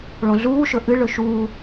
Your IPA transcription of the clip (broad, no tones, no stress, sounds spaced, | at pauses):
ɭ õ ɮ uː ʃ ɵ ʔ ɨ ɭ ɵ ʃ uː